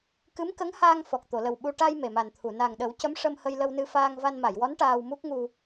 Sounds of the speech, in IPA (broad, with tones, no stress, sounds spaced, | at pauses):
k ɨ˧˥ m k ə˧˥ ŋ h aː˧ ŋ f ɔ˨˩ k̚ t̪ o˨˩˨ l ə˨˩ w ɓ u˧ ʈ a˧ j m e˨˩ m a˨˩ n t̪ʰ u˨˩˨ n a˨˩ ŋ ɗ ə˨˩˦ w c ə˧˥ m ʂ ə˧ m h ə˧ j l ə˧ w n ɨ˧ f aː˧ ŋ v a˧ n m a˨˩˨ j w ɔ˧˥ n ʈ aː˧ w m u˦˥ k̚ ŋ u˧